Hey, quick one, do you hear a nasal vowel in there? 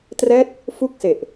no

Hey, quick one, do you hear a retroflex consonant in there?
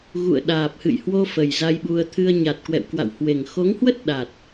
no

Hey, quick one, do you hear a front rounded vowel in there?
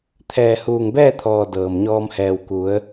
no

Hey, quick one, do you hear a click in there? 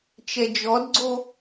yes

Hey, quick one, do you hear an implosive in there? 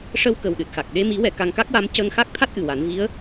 yes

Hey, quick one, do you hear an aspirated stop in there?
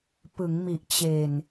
no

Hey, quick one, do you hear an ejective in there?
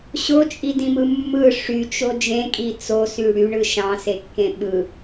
yes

